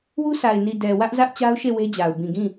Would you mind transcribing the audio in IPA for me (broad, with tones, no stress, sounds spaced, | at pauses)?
w u˦ s a˨ ɪ̯ n i˨ d ɛ˨ w ä˦ ʔ z ä˦ ʔ t͡ɕ a˦ ʊ̯ ʃ e˦˨ w e˦ d͡ʑ a˨ ʊ̯ b ĩ˨ ɡ ĩ˦˨